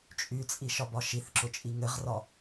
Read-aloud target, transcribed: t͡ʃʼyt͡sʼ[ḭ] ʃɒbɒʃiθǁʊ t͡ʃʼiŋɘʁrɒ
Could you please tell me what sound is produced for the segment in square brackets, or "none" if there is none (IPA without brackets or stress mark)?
i